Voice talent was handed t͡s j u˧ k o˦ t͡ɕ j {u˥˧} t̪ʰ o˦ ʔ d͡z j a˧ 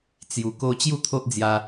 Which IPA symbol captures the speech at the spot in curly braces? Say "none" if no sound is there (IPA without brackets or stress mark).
u˥˧